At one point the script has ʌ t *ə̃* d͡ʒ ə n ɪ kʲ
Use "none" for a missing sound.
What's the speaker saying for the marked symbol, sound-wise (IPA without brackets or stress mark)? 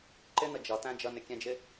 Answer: æ̃